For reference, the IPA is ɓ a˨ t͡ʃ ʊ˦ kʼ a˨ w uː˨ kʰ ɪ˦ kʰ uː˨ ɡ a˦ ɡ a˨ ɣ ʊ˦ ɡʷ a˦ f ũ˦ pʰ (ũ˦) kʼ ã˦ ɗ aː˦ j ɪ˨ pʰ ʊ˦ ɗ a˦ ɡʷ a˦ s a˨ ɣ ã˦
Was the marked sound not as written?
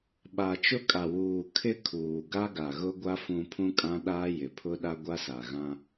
no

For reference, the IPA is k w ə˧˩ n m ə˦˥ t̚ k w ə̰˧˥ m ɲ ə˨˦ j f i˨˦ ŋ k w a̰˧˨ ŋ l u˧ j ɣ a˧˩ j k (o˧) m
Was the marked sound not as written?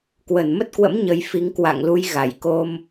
no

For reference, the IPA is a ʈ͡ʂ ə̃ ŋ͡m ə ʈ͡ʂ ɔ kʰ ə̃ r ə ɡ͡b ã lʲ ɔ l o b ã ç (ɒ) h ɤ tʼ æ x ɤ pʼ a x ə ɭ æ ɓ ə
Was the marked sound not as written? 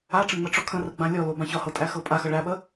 no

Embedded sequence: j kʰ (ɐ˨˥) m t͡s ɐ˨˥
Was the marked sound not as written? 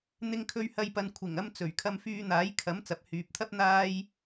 no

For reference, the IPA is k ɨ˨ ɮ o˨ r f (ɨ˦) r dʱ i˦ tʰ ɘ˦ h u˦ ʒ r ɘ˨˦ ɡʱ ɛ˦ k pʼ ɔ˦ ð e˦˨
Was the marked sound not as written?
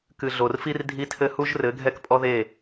yes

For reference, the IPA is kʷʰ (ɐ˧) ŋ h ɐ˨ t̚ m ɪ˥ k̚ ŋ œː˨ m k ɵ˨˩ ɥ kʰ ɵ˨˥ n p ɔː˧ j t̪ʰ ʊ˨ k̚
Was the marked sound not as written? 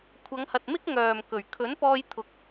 yes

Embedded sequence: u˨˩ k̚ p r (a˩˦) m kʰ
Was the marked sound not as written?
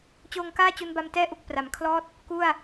no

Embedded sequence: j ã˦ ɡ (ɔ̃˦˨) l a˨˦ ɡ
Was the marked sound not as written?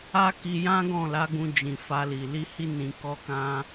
no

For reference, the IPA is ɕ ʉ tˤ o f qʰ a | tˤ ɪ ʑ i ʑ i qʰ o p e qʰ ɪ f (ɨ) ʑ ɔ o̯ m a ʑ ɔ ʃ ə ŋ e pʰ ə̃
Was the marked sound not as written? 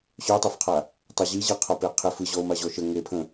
no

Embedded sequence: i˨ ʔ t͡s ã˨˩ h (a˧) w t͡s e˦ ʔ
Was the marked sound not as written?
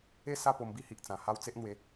yes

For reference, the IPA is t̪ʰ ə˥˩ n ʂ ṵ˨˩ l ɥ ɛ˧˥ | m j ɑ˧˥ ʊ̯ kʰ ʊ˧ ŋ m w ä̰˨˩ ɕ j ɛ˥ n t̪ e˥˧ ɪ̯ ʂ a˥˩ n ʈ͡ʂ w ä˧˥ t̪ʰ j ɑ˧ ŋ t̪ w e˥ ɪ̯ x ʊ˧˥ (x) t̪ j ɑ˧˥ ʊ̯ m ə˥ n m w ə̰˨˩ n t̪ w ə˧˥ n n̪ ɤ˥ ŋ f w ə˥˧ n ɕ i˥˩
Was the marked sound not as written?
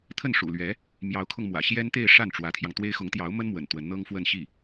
yes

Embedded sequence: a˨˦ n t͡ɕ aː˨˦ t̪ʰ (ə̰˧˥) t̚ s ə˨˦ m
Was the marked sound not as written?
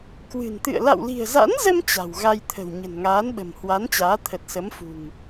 yes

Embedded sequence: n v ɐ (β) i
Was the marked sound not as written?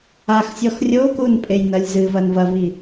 yes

